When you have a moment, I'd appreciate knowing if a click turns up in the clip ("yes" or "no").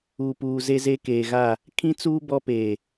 no